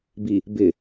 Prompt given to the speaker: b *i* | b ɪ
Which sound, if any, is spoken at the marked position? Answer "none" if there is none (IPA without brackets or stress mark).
i